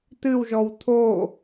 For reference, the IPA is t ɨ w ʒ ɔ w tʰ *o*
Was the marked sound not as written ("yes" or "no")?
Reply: no